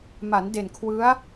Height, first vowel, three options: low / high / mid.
low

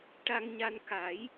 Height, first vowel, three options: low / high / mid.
low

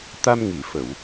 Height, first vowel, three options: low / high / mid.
low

